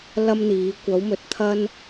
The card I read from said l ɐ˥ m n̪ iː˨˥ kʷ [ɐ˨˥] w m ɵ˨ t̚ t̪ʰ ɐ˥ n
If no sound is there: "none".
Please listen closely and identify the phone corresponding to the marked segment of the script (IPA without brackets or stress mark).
ɐ˨˥